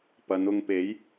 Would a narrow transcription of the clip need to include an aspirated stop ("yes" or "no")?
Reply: no